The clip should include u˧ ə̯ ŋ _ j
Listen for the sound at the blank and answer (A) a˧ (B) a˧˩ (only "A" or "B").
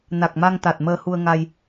A